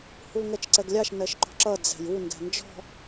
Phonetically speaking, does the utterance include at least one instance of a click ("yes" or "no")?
yes